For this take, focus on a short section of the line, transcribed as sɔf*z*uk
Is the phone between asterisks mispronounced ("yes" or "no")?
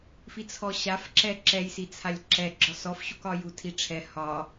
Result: yes